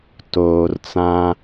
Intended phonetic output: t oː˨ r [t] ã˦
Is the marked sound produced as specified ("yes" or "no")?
no